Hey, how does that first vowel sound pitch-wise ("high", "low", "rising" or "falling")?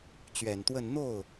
low